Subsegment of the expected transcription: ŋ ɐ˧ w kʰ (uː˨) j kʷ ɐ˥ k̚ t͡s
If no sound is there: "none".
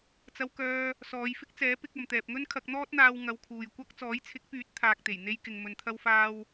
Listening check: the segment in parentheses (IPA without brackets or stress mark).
uː˨